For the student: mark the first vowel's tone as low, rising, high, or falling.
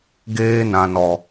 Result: high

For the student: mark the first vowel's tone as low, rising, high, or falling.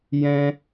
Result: high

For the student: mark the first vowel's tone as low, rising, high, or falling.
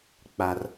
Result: low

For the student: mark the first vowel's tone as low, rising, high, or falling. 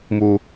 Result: high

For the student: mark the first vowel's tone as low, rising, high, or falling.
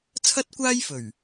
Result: high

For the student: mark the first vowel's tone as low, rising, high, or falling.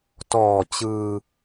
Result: low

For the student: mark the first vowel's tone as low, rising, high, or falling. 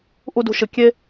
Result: high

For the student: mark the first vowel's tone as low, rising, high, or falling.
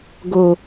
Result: low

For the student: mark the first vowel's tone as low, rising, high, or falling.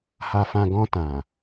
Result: low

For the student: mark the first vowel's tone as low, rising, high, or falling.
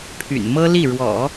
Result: low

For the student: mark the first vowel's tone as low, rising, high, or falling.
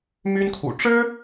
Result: high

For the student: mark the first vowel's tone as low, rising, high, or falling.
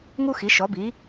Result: high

